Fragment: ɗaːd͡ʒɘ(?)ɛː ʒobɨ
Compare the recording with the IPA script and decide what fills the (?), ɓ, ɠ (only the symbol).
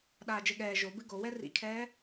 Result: ɠ